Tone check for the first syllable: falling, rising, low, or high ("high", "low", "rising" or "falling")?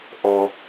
high